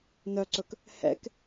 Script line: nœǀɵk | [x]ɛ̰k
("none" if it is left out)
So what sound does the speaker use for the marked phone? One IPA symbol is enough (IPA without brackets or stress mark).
h